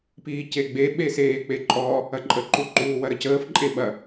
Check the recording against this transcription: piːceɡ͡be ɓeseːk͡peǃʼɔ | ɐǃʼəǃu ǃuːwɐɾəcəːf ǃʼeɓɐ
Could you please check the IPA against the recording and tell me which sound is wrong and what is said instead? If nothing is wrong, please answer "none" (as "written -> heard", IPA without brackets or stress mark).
none